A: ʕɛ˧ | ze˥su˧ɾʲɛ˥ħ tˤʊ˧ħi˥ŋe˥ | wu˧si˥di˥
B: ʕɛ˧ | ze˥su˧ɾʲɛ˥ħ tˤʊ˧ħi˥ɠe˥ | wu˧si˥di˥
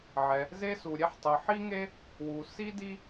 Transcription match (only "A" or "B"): A